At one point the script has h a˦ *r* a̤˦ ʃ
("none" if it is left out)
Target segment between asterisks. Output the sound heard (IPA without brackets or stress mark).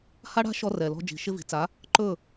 ɽ